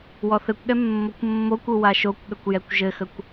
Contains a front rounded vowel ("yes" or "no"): no